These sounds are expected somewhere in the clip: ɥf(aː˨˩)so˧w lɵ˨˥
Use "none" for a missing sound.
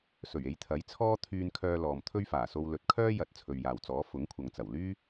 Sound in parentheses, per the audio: aː˨˩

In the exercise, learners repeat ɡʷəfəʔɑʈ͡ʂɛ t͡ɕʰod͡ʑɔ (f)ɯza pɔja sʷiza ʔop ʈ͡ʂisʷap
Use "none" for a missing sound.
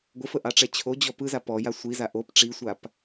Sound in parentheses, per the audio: p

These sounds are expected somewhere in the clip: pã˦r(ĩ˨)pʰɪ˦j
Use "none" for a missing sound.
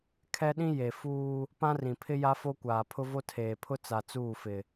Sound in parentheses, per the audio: ĩ˨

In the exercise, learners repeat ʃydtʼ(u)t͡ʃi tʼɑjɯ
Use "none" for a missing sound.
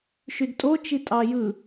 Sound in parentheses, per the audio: o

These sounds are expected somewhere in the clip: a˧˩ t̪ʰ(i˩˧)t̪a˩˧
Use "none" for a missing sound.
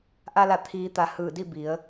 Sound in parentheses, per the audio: iː˩˧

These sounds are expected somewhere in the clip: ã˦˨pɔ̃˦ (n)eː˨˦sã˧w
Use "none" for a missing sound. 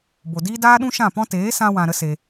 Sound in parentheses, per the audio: t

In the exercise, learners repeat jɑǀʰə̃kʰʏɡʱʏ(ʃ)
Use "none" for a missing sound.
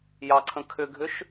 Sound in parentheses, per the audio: ʃ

